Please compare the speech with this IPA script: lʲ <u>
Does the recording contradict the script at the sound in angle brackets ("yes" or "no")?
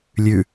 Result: yes